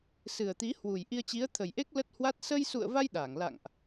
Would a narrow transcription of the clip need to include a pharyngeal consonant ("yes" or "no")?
no